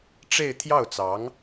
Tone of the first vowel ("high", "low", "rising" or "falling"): falling